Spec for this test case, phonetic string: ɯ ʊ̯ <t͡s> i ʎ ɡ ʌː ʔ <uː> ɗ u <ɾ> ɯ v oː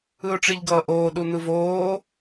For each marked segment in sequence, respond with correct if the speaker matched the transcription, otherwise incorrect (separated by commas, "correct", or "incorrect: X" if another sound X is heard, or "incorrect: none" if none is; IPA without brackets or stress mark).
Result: incorrect: ʈ͡ʂ, incorrect: oː, incorrect: n̪